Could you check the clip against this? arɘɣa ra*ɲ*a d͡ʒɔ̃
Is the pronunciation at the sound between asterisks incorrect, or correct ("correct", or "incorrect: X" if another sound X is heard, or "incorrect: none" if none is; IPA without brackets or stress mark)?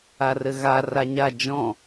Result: correct